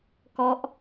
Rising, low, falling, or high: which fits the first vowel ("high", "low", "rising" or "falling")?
falling